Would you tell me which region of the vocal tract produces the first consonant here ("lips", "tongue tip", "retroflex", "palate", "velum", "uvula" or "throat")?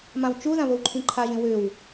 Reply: lips